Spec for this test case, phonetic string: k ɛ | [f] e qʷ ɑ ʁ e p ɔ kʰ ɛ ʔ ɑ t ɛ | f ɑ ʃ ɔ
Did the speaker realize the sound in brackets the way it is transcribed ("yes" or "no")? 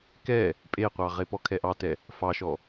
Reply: no